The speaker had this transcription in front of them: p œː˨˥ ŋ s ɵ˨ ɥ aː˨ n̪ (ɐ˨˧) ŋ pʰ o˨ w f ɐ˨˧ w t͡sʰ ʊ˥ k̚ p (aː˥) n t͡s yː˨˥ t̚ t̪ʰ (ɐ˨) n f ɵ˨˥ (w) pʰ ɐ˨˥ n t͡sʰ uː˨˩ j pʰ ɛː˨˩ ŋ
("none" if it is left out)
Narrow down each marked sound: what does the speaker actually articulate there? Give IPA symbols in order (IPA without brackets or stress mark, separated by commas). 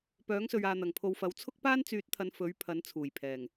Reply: ɐ˨˩, aː˥, ɐ˨˧, ɥ